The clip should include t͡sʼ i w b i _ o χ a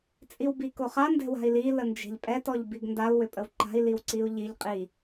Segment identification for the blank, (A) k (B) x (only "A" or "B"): A